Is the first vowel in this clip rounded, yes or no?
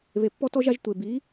no